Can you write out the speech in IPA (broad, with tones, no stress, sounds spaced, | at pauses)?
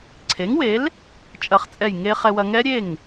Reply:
ǀʰ e˩˥ ŋ w e˩˥ l | t͡ʃʼ ɐ˨˩˦ χ t͡sʼ ɛ˧˩ j ŋ e˧ χ ɛ˧ w ɐ˧ ŋ ɛ˦˥ ɾʲ e˥˩ ŋ